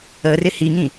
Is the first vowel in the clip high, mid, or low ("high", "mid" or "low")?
mid